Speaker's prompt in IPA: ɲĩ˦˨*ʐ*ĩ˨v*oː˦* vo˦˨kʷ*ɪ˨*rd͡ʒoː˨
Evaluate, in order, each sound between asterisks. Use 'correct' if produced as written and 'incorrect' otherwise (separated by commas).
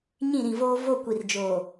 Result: incorrect, correct, incorrect